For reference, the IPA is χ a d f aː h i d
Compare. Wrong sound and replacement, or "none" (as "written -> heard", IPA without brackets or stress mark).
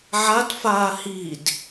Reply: χ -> ʕ